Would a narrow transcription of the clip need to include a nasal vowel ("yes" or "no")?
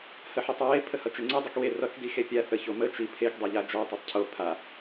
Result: no